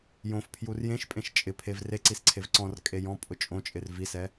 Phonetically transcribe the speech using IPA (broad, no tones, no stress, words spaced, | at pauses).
jõf pʰjurjẽʃpʼẽʃ t͡ʃʼɪ pʰevreǀis ǀʰevǀɔ̃rkʼe jɔ̃ pʼʊt͡ʃʼõt͡ʃʼɪr visɛ